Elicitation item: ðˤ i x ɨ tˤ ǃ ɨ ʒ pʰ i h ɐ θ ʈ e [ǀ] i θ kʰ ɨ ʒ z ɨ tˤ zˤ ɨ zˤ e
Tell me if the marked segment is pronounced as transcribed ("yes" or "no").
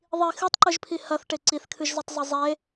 yes